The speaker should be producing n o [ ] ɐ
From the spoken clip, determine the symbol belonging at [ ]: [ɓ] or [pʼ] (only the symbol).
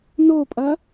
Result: pʼ